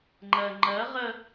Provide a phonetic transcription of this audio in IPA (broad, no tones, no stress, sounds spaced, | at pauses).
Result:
ŋ͡ǃ ɜ ŋ͡ǃ ɜ ʁ ə